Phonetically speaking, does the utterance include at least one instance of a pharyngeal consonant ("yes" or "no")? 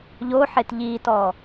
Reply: yes